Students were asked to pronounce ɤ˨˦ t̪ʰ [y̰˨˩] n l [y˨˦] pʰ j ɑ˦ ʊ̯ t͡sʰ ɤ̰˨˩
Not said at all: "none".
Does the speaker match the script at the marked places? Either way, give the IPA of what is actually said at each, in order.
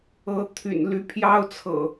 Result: y̰˨˩, y˨˦

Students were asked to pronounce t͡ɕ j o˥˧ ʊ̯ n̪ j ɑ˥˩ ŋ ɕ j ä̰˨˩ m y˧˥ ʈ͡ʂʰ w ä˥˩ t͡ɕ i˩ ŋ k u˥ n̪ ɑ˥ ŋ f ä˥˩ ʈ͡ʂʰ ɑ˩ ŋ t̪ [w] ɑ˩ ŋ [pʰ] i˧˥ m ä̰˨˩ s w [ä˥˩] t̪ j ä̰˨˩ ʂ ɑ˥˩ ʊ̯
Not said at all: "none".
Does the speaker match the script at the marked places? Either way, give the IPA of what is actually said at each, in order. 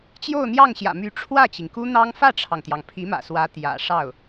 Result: j, pʰ, ä˧˥

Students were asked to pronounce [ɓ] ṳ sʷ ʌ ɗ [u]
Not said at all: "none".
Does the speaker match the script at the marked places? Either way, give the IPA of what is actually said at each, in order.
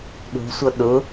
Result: ɗ, ʊ

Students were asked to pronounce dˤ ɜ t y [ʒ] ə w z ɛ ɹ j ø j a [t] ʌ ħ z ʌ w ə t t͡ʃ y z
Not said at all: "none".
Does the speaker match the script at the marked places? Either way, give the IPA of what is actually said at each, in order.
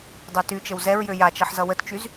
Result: t͡ʃ, t͡ʃ

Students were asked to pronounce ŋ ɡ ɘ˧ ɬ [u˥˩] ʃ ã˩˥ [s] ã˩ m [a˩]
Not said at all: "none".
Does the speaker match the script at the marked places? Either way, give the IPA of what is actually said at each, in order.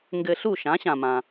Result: u˥˩, ɕ, ã˩

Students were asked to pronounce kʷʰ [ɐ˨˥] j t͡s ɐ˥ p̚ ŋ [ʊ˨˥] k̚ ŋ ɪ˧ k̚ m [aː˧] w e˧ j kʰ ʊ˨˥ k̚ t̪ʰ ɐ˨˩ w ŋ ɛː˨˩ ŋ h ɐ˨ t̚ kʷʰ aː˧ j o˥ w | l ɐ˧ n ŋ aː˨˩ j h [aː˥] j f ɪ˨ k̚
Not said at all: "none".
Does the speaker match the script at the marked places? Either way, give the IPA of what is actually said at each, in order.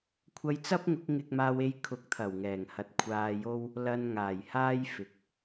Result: ɐ˧, ʊ˨˥, aː˧, aː˥

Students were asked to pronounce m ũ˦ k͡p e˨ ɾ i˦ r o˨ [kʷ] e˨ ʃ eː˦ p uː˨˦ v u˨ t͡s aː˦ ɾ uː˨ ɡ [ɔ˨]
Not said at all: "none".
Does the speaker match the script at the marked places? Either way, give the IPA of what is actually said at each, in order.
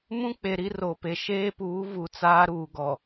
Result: p, ɔ˨

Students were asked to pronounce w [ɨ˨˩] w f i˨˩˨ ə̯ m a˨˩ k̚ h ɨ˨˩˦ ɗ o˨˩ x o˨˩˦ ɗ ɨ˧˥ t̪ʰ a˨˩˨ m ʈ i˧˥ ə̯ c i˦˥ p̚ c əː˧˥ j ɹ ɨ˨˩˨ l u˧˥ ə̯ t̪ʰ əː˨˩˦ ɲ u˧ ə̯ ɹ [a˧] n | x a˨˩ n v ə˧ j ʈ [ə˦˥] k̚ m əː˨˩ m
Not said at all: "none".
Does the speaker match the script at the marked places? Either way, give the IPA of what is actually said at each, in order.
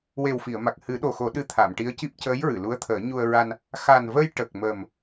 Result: e˨˩, a˧, ə˨˩

